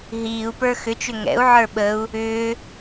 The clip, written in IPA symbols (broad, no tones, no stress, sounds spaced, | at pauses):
ɦ iː u̯ p ə˞ x ʏ t͡ʃ ʏ ŋ ɛ̰ u̯ ʕ ə˞ ɓ ə u̯ | ʏː